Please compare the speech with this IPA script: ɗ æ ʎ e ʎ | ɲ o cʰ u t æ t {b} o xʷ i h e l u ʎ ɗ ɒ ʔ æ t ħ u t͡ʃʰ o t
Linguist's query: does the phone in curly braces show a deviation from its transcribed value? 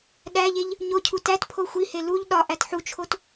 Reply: yes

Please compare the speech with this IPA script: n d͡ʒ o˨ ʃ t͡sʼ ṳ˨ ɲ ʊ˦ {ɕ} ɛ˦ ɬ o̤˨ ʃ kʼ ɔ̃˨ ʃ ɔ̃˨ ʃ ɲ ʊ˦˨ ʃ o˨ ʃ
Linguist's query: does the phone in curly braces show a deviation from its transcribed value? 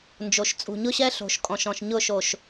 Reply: no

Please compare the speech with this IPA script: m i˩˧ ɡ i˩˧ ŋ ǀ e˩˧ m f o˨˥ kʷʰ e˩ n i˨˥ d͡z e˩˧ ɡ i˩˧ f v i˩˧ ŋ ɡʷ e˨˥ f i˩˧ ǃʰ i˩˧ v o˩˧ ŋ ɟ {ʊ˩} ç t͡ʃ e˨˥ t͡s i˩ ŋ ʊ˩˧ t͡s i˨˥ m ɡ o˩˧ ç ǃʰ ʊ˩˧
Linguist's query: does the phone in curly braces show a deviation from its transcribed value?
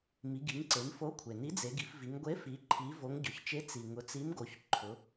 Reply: no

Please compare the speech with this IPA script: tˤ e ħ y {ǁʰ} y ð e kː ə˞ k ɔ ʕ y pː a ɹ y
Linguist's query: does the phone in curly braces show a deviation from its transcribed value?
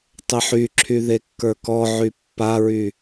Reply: no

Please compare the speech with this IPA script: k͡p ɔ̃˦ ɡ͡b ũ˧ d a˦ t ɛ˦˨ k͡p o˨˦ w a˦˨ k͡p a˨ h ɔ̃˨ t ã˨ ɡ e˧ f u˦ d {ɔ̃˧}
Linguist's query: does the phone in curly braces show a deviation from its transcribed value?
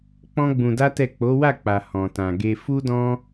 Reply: yes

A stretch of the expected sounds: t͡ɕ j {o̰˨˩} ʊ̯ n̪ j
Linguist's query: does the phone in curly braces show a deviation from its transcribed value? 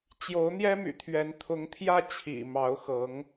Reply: yes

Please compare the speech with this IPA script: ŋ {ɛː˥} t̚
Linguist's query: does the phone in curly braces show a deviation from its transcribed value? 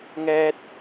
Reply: no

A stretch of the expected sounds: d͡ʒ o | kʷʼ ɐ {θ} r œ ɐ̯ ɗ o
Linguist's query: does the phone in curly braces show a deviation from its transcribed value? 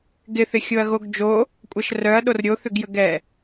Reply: yes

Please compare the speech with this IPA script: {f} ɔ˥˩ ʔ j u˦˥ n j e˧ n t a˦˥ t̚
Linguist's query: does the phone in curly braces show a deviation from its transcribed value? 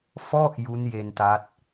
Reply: no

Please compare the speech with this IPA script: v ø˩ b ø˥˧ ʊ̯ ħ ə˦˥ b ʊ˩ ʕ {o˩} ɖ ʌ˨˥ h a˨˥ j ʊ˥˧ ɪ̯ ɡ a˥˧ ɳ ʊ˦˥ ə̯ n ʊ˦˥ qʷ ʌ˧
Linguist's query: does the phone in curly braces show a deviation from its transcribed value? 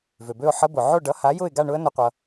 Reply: yes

